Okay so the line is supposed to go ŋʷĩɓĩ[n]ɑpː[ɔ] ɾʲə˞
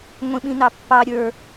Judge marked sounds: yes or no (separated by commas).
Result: yes, no